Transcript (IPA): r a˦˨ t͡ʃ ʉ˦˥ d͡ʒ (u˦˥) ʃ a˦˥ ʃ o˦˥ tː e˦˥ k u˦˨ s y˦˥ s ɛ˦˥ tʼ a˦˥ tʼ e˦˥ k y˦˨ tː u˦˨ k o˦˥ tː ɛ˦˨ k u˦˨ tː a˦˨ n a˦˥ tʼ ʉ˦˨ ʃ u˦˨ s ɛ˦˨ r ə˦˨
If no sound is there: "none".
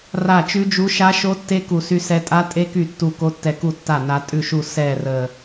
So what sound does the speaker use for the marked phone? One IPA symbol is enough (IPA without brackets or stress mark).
u˦˥